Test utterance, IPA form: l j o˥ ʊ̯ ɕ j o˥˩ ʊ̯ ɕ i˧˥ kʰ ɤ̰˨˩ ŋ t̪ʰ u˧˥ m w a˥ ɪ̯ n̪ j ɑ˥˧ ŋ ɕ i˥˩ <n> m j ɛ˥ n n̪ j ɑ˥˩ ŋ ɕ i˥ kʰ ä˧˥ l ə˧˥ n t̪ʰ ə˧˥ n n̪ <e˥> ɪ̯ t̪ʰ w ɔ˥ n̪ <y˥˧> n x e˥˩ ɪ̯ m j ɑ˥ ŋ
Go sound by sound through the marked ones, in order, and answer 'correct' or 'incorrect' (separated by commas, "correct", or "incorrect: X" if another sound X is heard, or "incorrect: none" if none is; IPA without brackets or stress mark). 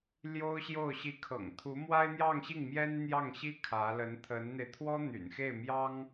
incorrect: ŋ, incorrect: e˧, incorrect: y̰˨˩